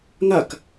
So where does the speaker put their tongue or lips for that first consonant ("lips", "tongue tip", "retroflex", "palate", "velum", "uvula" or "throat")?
velum